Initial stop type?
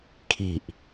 aspirated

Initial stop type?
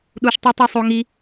implosive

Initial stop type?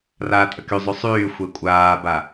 ejective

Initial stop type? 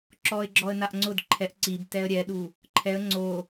click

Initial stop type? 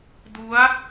plain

